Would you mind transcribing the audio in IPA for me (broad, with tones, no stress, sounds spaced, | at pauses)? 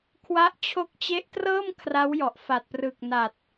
kʰ w a˦˥ ʔ t͡ɕʰ o˦˥ k̚ t͡ɕ e˦˥ ʔ t r ɤː˥˩ m kʰ r a˦˥ w j ɔ˨˩ ʔ f a˨˩ t̚ p r ɯ˨˩ k̚ n a˨˩ t̚